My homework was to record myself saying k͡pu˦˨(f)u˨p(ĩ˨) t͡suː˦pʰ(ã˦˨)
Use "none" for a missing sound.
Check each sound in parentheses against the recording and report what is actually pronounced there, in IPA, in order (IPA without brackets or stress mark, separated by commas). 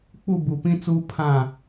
b, ĩ˦, ã˦˨